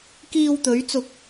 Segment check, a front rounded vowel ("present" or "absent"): absent